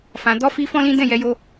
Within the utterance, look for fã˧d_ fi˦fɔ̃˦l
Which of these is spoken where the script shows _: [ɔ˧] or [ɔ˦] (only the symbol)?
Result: ɔ˦